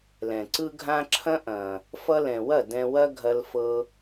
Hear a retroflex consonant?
no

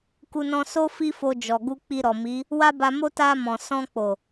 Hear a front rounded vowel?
no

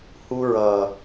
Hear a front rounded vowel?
no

